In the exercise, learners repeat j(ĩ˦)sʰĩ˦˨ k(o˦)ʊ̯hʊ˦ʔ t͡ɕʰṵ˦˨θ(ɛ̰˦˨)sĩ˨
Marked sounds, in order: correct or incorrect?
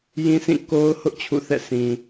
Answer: correct, correct, correct

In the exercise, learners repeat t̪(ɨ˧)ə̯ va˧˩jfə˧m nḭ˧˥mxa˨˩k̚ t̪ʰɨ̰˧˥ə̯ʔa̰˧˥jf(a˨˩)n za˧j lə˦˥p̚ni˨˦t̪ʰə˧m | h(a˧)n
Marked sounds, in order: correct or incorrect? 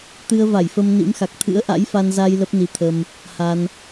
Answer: correct, incorrect, correct

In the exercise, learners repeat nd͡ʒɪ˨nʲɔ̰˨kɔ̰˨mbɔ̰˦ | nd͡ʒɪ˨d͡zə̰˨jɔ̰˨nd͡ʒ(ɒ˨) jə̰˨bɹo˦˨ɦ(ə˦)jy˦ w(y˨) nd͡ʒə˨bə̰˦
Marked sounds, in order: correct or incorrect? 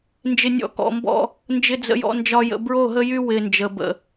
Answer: correct, correct, incorrect

